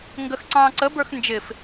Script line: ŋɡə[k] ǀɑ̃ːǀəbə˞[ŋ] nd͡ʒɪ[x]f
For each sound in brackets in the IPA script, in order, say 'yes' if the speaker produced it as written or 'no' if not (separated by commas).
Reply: no, no, no